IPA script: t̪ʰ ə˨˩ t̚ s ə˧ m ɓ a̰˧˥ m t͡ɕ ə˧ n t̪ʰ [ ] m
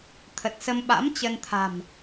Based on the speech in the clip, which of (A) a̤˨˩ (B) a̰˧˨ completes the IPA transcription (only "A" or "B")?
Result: A